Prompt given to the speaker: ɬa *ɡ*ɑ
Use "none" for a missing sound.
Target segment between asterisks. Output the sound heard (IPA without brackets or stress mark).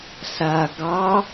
ɡ